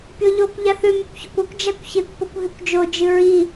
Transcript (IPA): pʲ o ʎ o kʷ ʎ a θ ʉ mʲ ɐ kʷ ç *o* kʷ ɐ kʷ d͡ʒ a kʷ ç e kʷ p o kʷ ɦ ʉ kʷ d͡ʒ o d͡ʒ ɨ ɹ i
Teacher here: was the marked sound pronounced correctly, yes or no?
no